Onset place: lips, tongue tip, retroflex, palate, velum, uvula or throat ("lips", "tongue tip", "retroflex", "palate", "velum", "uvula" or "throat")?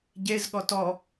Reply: palate